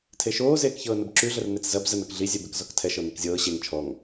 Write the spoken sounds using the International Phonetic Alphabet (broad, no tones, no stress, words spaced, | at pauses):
tʰeʃoːzeːk çɤːnəbǁyɮər net͡szɐb zənɤk ɮizʲɛ bekzɔktʰɛʃɤ nekzʲɤː ɕeŋ t͡ʃʰɔŋ